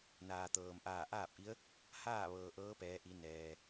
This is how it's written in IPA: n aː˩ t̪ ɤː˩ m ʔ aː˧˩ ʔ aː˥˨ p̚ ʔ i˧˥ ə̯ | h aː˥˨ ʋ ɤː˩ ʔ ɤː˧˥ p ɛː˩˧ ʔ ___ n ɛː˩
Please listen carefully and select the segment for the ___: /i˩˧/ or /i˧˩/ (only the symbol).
i˩˧